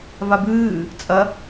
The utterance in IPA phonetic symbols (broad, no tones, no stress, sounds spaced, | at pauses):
v a b ɨː | t͡sʼ ɐ